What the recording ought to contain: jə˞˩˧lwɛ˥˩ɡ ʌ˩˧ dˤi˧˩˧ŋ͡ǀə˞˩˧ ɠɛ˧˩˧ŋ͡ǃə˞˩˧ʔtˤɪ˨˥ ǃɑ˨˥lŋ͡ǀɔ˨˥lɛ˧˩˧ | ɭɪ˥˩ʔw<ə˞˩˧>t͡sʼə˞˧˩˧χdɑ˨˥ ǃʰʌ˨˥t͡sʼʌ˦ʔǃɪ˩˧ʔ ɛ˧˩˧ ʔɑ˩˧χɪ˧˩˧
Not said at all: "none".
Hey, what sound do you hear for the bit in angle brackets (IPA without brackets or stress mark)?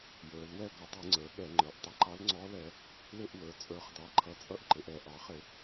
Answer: ə˞˩˧